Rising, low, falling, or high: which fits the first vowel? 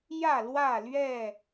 falling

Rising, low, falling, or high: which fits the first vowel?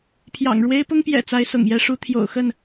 low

